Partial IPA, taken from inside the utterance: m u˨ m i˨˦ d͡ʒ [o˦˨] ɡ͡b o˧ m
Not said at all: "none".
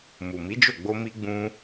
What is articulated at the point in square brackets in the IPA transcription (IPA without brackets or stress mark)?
o˦˨